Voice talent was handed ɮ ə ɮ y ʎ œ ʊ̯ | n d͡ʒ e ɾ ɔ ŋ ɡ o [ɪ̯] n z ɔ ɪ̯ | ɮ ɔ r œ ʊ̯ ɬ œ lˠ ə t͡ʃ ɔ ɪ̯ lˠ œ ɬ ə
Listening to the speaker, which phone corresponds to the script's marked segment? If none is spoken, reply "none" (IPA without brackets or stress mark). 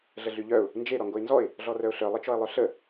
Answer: ɪ̯